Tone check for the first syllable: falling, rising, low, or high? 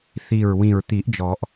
low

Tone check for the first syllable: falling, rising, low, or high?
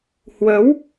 rising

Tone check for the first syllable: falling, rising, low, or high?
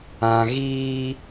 low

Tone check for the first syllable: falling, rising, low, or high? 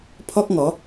high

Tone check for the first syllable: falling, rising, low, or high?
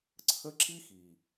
high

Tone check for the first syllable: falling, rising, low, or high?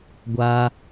high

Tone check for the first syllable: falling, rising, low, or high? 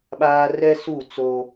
high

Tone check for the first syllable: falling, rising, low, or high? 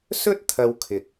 high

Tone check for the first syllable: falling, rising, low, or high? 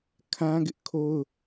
high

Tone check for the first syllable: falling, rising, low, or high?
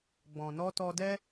low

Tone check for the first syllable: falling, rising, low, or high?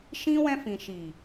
high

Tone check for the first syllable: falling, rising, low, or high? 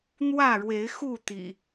falling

